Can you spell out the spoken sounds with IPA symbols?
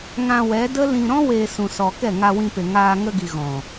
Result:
ŋã˧wɛ˨˦ də˦ lĩ˧ɾɔ̃˦ weː˧sũ˨sɔ˨ kɛ˦˨ŋa˧ wĩ˧pe˨ ŋaː˧ ŋə˧ɡi˨ ɣɔ̃˨

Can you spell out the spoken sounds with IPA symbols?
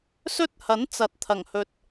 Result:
sɵ˥t̚ hɐ˨˥n t͡sɐ˨t̚t̪ʰɐ˨˩ŋhɵ˨t̚

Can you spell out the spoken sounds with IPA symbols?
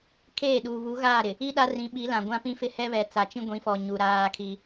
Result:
kʰeː˦˨ɗuː˨ βu˨˦ɣaː˦˨ɾɪ˨ | i˦ ɗa˦rĩ˨˦ɓi˨˦ lã˨ɡʷã˦pĩ˦fɪ˦ hɛ˦βɛ˨ t͡sa˨t͡ʃĩ˦ɡʷĩ˨˦fɔ˨ ɲu˨ɾaː˦kʰi˦

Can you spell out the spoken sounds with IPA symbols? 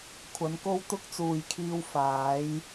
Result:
kʷʰɐ˨˥nko˥w t̪ʊ˥k̚t͡suː˨jkʰiː˧w faː˨˥j

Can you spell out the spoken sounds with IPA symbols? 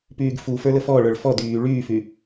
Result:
pyːɡfufə˞ ləfɔɭə˞ɭ fɔ dyː ɭyːfy

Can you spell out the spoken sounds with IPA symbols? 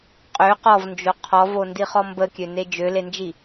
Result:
qʼø qɔvnd͡ʒo qʰɔvondiχɔ mbəkʲøne d͡ʒølend͡ʒi

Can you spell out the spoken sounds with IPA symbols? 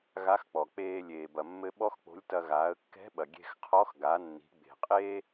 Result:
ɣa˧˥xk͡pɔ˩ k͡peː˧lʲeː˩ bɐ˩mːɘ˧ ɓɔ˥xk͡po̤˧˥lʲtɐ˧ ɣaː˩˧ə̯kːɛ̤˧˥ɓɐ˩ ɡʲe̤˧xqʰɔ˧˥x ɡa˩˧nːi̤˩˧ ɡ͡be̤˩qʼeː˥

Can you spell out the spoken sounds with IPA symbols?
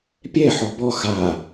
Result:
pʲɛ ħɔbɔ xa

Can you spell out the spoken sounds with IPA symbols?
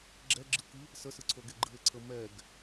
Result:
ɡ͡ǁɛɡ͡ǁɯkɨ | səsɯǀʰoɡe ɡ͡ǃɨe̯ǀʰə mɛɡ

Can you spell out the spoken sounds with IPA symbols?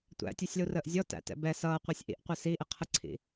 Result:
tʷæ̰tʲusʲlurəːʔ zʲɔtæ̰tɛ̰ bɛ sʌːqʷɪːsʲ ʔḭʔqʷɪ siʔɪ qʰəǀʰḭ

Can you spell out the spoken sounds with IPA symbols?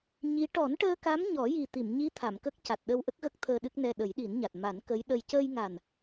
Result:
ɲi˧˥ ʈɔ˨˩˦nʈəː˧ka˧˥m ɲɔ˨˩˦ji˨˩t̪i˨˩˨m ɲi˧˥ t̪ʰa˨˩˨mkə˦˥k̚ ca˨˩t̚ɗə˧wʔə˦˥k̚ɣə˦˥k̚ t̪ʰəː˧ɗɨ˦˥k̚nɛ˧ ɗə˨˩˦jɗi˨˩˦nɲa˨˩t̚ ma˨˩˦nkə˧˥j ɗə˧j cəː˧jŋa˨˩n

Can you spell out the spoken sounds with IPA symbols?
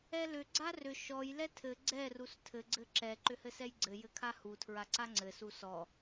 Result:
ɛlʏ ɡ͡ǀarʏ ʃɔj lɛtʰɘ ɡ͡ǀɛ rustʰɘ ɡ͡ǀɘǁɛ ǃʏhɘsɛjɡ͡ǀɘ jɘkʰahu tʰɹaǀaŋ͡ǀɘ susɔ

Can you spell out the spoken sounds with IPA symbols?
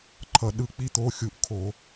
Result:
ǃʰʌ˩ɗɯ˧˩k͡pi˧˥t̪o˩˧˩ xʲu˧˩˧ʔkʰo˧˩˧

